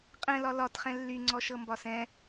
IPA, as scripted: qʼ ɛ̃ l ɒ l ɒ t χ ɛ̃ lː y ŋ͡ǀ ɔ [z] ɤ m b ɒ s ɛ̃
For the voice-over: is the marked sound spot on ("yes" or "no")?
no